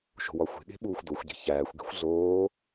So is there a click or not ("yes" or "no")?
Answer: no